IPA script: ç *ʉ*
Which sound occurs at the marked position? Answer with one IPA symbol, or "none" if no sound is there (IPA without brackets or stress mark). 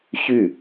ʉ